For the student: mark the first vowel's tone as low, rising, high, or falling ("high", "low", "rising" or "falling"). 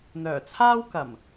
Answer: low